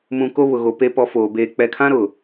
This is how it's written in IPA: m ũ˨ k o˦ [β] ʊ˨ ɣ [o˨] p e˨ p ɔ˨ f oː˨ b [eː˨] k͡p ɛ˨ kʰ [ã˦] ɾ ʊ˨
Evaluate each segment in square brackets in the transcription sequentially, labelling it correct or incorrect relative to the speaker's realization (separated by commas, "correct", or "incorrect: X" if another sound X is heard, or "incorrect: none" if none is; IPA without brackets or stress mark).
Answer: correct, correct, correct, correct